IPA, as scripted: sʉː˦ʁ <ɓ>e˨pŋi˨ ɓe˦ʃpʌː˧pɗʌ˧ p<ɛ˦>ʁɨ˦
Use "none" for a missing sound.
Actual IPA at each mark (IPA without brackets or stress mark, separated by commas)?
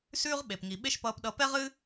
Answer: ɓ, ɛ˦